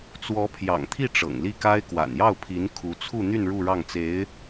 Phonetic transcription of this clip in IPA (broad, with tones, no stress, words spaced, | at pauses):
t͡swɔ˧˥pʰjɑ̰˨˩ŋt̪ʰi˥˩ ʈ͡ʂɤ̰˨˩ŋli˥˩ka˥ɪ̯ kwa̰˨˩njɑ˥˩ʊ̯pʰi˧˥n kʰu˧˥t͡sʰu˥˧n̪y˥˧n ɻu˥˧ɻɑ˥˩ŋt͡se˧˥ɪ̯